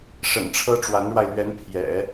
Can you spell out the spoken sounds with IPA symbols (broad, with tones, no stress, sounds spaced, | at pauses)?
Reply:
ʂ ə̰˨˩ n ʈ͡ʂʰ ɤ˥ ʈ͡ʂ w a˧˥ n ɻ w a˧ ɪ̯ l ɥ ɛ˧˥ n pʰ j ɛ̰˨˩˦